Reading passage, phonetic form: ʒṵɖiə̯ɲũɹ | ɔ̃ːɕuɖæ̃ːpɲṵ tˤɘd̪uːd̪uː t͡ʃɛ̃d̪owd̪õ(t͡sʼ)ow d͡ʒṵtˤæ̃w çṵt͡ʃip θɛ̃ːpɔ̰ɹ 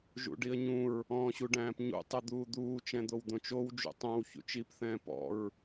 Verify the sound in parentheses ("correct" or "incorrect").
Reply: incorrect